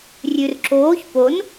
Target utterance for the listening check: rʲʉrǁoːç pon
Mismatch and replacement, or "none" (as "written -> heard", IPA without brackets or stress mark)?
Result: none